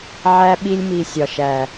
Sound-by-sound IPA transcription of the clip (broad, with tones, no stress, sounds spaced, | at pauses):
ʕ æ˦ ɓ i˧ lʲ m i˨ sʲ ɒ˨ ʃ æ˨